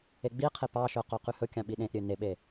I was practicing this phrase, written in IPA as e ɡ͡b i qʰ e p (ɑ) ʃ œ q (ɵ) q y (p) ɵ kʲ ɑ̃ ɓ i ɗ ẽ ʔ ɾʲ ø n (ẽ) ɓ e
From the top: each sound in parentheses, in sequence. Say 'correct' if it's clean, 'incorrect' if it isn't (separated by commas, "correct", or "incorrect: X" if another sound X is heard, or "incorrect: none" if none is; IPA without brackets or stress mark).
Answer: correct, incorrect: œ, incorrect: h, incorrect: e